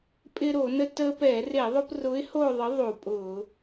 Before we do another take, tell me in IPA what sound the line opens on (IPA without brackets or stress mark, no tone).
pʼ